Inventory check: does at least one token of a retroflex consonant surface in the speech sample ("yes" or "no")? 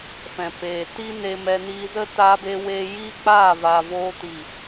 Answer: no